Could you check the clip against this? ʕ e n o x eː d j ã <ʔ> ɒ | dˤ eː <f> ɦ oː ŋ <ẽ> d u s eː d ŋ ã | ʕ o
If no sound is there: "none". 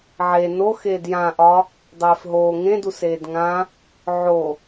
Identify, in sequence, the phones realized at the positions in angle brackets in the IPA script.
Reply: ʔ, f, ẽ

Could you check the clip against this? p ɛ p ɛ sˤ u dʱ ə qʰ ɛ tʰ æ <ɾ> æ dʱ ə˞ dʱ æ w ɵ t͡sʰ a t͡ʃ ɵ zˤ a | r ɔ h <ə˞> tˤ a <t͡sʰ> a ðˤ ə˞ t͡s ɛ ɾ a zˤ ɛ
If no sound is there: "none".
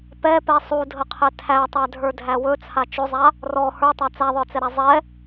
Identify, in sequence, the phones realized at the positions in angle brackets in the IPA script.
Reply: tˤ, ə˞, t͡s

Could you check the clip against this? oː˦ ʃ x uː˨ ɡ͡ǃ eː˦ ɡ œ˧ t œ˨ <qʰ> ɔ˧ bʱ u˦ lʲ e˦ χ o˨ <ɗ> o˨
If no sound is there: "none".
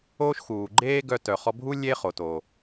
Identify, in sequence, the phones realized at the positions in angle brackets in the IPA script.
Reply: χ, t

